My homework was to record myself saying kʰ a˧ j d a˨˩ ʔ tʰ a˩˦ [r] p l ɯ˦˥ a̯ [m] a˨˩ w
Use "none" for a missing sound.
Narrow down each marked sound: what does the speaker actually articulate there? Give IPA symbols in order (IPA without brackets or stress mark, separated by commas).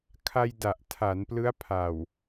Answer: n, pʰ